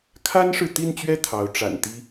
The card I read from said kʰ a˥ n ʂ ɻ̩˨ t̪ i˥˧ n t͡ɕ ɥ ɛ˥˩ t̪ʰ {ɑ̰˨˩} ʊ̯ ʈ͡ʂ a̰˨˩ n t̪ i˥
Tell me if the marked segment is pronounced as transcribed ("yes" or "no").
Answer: no